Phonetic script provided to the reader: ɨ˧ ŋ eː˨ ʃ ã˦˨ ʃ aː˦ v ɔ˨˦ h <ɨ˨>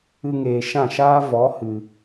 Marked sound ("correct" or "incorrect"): correct